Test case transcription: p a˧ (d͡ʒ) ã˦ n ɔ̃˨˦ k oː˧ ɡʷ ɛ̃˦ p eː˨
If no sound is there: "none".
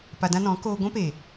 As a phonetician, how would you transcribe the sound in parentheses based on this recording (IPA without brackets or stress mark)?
d